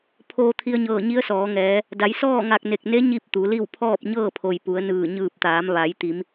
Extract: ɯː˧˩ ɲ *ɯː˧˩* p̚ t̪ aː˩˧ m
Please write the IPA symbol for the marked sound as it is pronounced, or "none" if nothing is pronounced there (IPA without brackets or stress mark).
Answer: ɯː˧˩